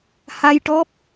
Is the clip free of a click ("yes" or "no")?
yes